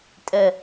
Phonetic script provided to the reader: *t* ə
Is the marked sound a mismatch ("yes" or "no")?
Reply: yes